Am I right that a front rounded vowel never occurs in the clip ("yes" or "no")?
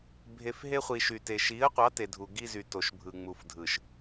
no